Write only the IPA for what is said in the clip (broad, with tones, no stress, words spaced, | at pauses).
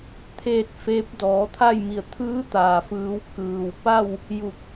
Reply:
t̪ʰeː˥˨t̚feː˧˥p̚ dɔː˩˧ t̪ʰa˥˨jmi˧˩ə̯ t̪ʰɯː˧˥t̪aː˩fɯː˩˧w kɯː˩wpa˥˨w | ju˧˩k̚